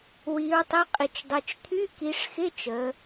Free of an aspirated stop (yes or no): no